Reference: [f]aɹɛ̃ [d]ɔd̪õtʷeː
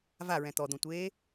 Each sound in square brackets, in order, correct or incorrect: incorrect: v, incorrect: t̪

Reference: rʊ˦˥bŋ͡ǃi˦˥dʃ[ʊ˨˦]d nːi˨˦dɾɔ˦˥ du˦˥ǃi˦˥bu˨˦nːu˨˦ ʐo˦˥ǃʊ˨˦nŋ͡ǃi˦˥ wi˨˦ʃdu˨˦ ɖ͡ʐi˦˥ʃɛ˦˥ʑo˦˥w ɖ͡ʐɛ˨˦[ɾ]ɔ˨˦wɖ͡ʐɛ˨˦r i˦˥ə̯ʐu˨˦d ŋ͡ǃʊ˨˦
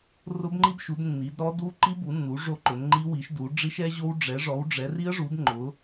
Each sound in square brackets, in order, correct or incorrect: incorrect: u˨˦, incorrect: ʐ

